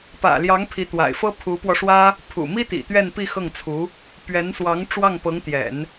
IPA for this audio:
p ä̰˨˩ l j ɑ˧˥ ŋ pʰ i˧˥ t̪ w a̰˨˩ ɪ̯ f ɤ˥ pʰ u˧˥ p w ɔ˧ ʂ w ä˥ | pʰ ṵ˨˩ m i˥ t̪ ḭ˨˩ t̪ ɥ ɛ˥˧ n p i˥˧ x ɤ˥˩ ŋ t͡sʰ u˧˥ | p ɥ ɛ˧˥ n s w ɑ˧˥ ŋ ʈ͡ʂ w ɑ˥˩ ŋ p ɤ˧˥ ŋ t̪ j ɛ̰˨˩˦ n

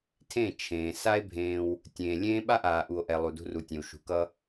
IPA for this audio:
tʰ ẽ˦˨ t͡ʃʰ ẽː˨ s a˦ e̯ bʱ ẽː˧ w | tʲ ẽː˨ lʲ ẽː˦ ɓ a˦ ʔ aː˨ ʔ u˨ o̯ ʔ ɛ˨ lˠ u˨ d ṳ˧ r u˨ tʲ ẽ˨ w ʃ ṳ˨ k ʌ˧

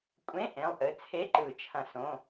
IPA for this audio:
kʷʼ ẽ˧˥˧ ʔ ẽ˩˧˩ lˠ ʔ ɘ˩˧˩ t͡sʰ e˧˥˧ ǃ ɯ˨˩˦ t͡ʃʰ ɐ̃˨˩˦ s õ˩˧˩

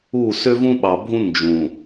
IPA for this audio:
u˦˨ s ø˦ v ũ˦ ɓ ɑ˨ bʱ ũ˦ n d͡ʒ ũ˨

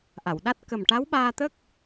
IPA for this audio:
ʔ a˨˩˨ w ɗ a˦˥ t̚ k ə˨˩ m ʈ a˧˥ w ɓ aː˧ t̪ ə˦˥ k̚

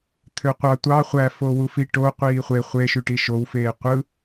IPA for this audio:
t̪ʰ ø qʷ ɑ tʷ ɑ χʷ æ f o w u f i ʈ o qʷ iː χʷ e χʷ e ʃ y ʈ i ʃ o w f eː qʷ ɯ

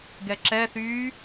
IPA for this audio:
ɡ ɛ ǁ ɛ θ yː

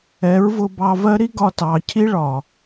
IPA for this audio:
ɛ˨˦ ɹ v ʊ˧ b ɑ˧ v ɜ˦ ɾ i˦ ɡ ɒ˧ t ɑ˨ cʰ i˦ ɭ ɒ˨

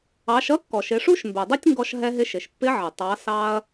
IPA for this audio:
ɑ˩˧ ʃ ʌ˧˥ kː ɔ˩ ʃ ɪ˩˧ ʂ u˥ ʃ m b ɛ˩ dˤ ʊ˥ tʲ ŋ ɡ ɔ˧ ʃ ɦ ɛ˧ ɦ ɪ˧ ʃ ɪ˩ ʃ pː ɪ˧˥ ʕ ə˩ tˤ ɑ˩˧ s ɑ˧ ɐ̯

